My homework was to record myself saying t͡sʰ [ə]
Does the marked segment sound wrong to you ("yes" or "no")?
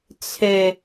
yes